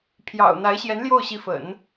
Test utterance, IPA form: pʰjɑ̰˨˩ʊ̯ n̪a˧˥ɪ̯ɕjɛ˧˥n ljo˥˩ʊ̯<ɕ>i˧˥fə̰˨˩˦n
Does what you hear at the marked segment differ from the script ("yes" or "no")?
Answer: no